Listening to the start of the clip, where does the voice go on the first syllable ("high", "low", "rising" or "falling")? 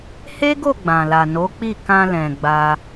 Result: high